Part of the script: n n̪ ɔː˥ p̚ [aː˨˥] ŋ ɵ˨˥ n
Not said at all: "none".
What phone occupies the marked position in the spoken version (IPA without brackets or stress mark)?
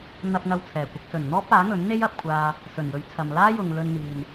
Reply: aː˨˥